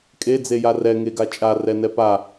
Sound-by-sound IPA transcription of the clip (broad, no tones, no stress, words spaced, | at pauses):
kʼe d͡zejarɛ ŋeɡat͡ʃʼa rɛnɛpa